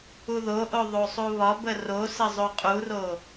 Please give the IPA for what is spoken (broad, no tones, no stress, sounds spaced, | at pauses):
u ð o ʔ o ðˤ o sˤ u β ɒ b ə r o s ə zˤ o qʼ u r o